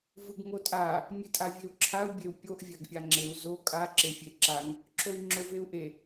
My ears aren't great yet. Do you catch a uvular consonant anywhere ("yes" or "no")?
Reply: no